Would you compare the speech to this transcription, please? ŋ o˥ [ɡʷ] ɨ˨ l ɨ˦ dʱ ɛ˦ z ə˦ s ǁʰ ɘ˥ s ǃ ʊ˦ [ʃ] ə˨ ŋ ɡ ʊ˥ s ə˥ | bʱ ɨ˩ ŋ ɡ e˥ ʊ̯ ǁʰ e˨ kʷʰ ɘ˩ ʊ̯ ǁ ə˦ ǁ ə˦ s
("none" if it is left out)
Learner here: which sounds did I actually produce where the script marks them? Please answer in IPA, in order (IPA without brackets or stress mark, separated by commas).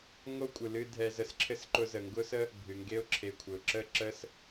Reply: kʷʼ, z